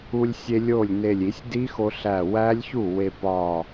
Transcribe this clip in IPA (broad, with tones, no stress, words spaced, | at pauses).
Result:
u˧lʲsʲe˧ lʲo˥˩lʲne˧˩lʲ i˨˩˦sʲ di˦˥xo˧ ɬæ˧˩wæ˦˥lʲçu˥˩ we˧pɒ˧˩